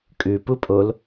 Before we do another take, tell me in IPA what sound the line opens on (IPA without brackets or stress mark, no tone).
kʼ